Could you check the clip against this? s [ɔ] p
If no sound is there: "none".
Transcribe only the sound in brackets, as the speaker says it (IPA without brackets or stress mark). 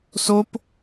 o